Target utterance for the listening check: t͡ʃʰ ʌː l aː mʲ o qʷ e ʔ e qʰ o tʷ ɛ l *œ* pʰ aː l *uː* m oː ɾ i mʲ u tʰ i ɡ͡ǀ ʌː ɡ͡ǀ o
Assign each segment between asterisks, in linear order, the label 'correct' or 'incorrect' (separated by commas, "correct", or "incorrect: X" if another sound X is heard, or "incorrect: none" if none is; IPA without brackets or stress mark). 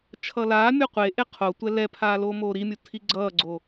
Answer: incorrect: ɛ, incorrect: oː